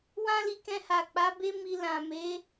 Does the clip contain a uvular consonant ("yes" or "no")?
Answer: no